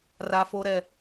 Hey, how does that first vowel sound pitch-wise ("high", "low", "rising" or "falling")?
low